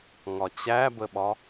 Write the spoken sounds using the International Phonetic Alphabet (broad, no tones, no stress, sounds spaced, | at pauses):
ŋ ɒ t͡ɕ æ b ə ɓ ɒ